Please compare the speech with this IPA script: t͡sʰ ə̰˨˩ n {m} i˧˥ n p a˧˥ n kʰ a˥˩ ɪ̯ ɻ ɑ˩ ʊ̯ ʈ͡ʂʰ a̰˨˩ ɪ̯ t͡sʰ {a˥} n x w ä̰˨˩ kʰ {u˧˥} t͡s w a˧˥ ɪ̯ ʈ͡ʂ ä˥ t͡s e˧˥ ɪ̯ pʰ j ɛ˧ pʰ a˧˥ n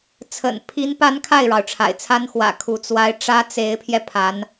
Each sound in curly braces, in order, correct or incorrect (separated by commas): incorrect, correct, correct